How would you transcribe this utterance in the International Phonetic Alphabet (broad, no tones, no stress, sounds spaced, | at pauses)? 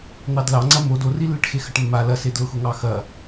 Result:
n̪ ɑ d l ɑ ŋ͡ǀ ɐ m o d o r i lː e ʈ x e x ɐ ʈ mː a l ɐ s e d l ʊ x ʊ ŋ ɑ x ɐ